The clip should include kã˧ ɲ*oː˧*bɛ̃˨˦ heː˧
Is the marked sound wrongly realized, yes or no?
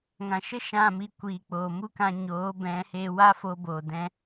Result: yes